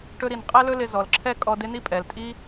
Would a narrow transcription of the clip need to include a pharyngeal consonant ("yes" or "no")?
no